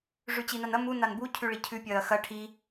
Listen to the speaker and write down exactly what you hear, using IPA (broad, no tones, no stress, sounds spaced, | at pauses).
ʐ ʉ t͡ɕ i n a n ɐ m u n a n b u cʰ ʉ ɭ i cʰ ʉ pʲ ɐː x ɐ ʈʰ i